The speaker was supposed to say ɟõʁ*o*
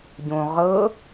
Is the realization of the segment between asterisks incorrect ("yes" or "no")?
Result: yes